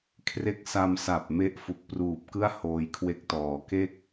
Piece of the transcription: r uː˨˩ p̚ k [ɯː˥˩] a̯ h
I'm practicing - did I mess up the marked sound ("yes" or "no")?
yes